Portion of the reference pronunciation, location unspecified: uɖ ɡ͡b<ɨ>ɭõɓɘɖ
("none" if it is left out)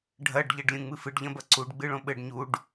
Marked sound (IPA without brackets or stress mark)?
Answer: ɨ